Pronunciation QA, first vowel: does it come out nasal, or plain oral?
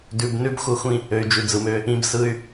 oral